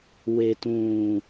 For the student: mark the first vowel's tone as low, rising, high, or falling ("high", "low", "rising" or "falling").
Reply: low